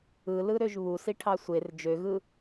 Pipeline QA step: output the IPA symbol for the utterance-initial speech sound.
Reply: ɯ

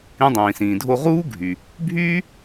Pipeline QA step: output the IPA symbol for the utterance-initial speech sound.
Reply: ĩ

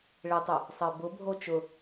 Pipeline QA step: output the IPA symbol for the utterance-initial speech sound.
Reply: ɭ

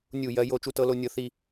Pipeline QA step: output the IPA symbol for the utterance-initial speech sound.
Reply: nʲ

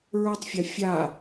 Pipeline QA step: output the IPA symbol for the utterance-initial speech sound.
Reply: ɹ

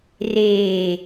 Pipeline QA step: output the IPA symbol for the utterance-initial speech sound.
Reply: r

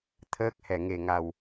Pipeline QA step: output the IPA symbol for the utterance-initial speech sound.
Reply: t̪ʰ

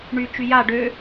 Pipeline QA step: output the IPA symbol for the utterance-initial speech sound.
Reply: ɳ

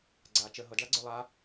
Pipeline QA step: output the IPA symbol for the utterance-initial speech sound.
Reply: ɡ͡ǀ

